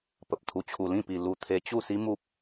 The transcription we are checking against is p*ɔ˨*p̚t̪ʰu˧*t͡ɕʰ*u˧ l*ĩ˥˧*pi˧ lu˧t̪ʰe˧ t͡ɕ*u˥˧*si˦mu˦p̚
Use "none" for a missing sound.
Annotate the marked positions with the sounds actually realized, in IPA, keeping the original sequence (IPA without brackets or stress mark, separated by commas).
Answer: ə˨, t͡ɕʰ, ĩ˥˧, u˥˧